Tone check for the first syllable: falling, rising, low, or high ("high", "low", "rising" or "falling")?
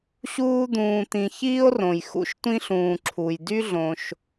high